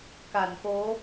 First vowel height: low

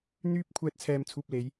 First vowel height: high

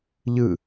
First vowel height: high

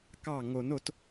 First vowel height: low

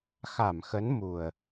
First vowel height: low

